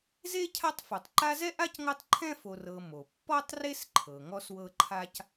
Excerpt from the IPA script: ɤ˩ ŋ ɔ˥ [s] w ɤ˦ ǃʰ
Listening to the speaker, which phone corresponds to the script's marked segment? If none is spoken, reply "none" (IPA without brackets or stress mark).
s